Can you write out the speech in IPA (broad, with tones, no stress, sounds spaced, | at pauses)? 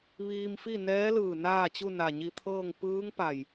ʋ iː˧ m f i˥˨ n ɛː˧˥ l ɯː˧˩ n aː˥˨ t͡ɕ u˥˨ n a˧˩ ɲ i˧ t̪ʰ ɤː˥˨ ŋ p ɯː˧˥ ŋ p a˧˩ j